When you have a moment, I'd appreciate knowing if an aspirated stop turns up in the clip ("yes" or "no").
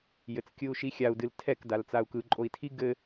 yes